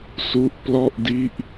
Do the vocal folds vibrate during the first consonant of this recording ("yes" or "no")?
no